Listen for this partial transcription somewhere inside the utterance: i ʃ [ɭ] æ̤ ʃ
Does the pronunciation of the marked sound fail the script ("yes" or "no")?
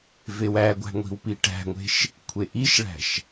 no